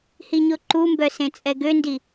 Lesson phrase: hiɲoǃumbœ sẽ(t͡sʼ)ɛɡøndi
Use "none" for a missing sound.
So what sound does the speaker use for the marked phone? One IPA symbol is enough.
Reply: t͡sʼ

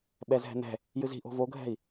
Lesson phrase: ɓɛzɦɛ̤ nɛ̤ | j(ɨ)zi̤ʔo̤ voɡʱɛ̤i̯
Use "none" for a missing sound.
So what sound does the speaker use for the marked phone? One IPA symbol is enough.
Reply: ɨ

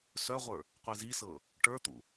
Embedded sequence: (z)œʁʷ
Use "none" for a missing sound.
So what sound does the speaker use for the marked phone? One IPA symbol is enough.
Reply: s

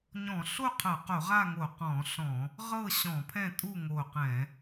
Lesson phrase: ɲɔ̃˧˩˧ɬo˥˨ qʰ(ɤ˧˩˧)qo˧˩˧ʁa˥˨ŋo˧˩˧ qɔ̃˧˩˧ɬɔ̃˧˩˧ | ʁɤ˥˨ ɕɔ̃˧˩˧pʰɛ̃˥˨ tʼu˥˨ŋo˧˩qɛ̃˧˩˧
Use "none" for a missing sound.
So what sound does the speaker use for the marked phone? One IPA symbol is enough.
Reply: ɤ˧˩˧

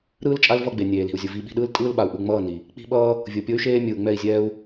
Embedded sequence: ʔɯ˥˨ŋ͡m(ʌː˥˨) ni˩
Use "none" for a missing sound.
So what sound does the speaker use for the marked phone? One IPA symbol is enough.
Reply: ʌː˥˨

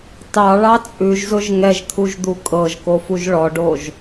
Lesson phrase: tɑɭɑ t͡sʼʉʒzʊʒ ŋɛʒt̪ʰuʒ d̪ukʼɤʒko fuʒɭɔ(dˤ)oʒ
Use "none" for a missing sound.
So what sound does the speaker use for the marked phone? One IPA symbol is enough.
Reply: ɖ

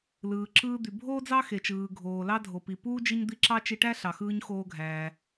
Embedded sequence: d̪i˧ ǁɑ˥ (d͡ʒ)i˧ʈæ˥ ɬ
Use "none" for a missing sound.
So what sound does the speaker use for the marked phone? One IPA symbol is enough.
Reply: t͡ʃ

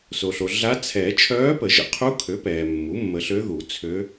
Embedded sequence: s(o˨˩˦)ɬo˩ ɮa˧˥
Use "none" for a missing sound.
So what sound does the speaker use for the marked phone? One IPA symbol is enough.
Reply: o˩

